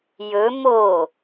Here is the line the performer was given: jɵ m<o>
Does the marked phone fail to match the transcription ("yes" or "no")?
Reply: no